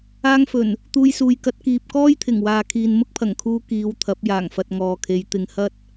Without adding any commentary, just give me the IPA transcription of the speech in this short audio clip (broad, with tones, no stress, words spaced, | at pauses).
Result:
aː˧ŋfɵ˨˩n | t̪uː˧jsuː˨j kɐ˧t̚ kiː˨p̚kɔː˥jt̪ʰɪ˨˩ŋ waː˨kʰiː˨n mʊ˥k̚pʰɐ˨˩ŋkʰuː˧ kiː˨˧wt̪ʰɐ˨˥p̚ jaː˨˩ŋfɐ˨t̚ ŋɔː˨kʰe˨˧j t̪ɪ˨ŋhɐ˥t̚